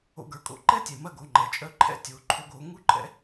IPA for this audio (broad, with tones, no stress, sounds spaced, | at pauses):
o̰˧ ɡ ə˞˩ kʼ o̰˧˥ ǃ ɛ˥ tʲ ɛ˩ m ɐ˥ ɡ o˩˧ ŋ͡ǃ ɛ˩ t͡ʃʼ œ˥ ǃʰ ɛ̰˥ tʲ o˩˧ ǃʰ o˧ ɡ o˩˧ ŋ u˥ ǃʼ ɛ̰˥